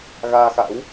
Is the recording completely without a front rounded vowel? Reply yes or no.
yes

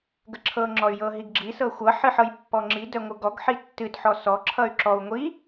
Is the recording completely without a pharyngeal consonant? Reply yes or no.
no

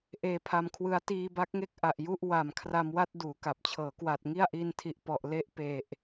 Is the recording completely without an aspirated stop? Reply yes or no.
no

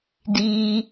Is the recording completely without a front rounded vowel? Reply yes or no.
yes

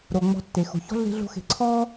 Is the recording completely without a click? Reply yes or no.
no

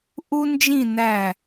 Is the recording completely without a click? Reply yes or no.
yes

